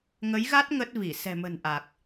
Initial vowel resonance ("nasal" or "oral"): oral